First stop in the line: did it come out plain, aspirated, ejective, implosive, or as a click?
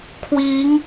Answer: aspirated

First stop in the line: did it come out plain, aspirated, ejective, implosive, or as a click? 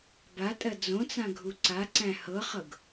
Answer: plain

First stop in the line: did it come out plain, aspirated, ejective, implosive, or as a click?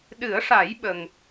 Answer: implosive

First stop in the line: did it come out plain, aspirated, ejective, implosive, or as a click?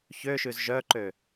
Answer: click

